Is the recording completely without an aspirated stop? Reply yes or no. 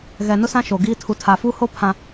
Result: no